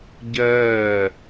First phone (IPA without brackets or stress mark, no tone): ɟ